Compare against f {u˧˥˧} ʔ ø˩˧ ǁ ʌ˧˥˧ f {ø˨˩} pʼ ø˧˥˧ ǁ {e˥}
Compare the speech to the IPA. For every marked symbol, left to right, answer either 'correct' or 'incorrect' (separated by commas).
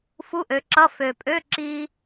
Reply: correct, correct, incorrect